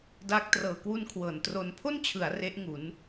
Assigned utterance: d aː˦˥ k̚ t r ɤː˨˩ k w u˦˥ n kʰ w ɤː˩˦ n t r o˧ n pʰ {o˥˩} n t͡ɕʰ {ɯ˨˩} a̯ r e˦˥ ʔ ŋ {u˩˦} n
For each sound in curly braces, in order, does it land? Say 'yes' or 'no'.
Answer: yes, no, yes

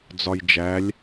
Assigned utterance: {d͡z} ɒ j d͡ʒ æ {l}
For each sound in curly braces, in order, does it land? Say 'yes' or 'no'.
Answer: yes, no

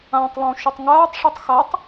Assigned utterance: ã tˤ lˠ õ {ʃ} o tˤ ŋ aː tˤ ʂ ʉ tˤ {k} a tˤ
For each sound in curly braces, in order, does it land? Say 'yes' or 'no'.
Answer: yes, no

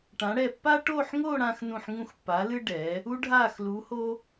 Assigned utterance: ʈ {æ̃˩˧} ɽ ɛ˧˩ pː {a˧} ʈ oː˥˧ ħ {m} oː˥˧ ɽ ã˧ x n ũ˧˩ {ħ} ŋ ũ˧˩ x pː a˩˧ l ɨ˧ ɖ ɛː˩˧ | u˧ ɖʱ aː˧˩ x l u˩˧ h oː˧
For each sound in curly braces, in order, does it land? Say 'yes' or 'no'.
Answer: no, no, no, yes

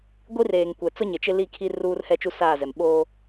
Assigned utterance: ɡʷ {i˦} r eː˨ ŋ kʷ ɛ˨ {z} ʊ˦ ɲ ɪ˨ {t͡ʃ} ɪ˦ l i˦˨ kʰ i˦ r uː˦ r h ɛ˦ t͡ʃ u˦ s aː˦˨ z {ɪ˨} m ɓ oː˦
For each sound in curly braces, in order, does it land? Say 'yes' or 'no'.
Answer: yes, no, yes, no

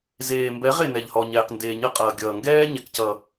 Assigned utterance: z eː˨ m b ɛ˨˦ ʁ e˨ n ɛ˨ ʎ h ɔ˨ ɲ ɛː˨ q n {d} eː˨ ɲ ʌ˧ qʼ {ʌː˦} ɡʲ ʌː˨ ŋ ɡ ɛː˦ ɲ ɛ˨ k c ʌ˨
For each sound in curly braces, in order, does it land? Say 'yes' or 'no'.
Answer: yes, no

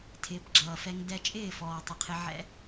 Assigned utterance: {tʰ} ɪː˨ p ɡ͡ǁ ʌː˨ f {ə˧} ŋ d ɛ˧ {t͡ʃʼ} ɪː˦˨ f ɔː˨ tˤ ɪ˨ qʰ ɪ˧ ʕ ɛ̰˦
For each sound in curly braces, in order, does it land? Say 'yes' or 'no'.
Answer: yes, no, yes

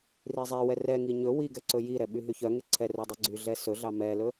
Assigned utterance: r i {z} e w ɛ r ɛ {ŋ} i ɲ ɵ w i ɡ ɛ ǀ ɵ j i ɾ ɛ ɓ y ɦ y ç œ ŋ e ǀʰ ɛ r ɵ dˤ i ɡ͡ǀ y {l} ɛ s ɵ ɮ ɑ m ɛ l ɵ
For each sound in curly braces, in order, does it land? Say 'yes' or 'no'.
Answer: no, yes, no

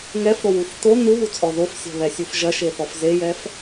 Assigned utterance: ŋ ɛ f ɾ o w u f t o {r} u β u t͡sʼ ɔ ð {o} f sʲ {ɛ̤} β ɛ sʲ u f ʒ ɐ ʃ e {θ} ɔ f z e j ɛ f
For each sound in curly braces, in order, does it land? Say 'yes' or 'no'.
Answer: no, yes, yes, yes

